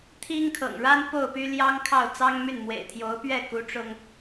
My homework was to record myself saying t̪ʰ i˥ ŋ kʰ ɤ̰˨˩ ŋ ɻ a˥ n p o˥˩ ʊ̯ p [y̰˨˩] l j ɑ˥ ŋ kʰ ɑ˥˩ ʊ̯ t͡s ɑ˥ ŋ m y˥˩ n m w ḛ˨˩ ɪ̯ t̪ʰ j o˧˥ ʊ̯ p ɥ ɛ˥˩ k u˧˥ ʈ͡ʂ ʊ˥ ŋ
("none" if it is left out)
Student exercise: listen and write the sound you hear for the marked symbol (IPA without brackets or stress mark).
y˥